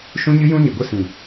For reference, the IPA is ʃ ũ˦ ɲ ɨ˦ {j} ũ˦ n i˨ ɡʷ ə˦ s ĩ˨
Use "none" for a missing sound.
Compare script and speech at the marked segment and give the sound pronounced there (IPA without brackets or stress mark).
j